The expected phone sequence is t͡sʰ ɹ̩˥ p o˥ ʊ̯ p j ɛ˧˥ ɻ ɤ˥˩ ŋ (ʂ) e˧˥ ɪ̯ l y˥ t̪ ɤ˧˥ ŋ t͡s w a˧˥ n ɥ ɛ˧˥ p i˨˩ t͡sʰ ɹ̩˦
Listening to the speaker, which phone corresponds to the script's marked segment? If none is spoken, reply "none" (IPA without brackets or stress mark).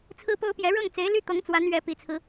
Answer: t͡s